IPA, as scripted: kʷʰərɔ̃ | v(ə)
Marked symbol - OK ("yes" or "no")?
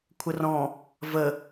yes